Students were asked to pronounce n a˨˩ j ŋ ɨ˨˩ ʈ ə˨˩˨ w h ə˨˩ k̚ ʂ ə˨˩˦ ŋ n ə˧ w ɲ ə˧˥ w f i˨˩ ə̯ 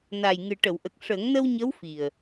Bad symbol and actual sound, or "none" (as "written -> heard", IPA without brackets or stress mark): h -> ʔ